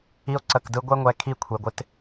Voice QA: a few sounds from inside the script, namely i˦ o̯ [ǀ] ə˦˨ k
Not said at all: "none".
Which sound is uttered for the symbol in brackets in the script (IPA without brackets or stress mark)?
ǀ